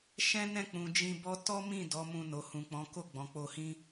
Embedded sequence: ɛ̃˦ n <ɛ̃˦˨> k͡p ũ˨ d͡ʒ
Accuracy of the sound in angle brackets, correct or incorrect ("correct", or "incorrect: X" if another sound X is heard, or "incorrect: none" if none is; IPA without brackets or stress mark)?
correct